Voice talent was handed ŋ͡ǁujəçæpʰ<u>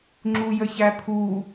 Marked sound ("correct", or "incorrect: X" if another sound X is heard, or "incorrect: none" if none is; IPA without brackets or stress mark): correct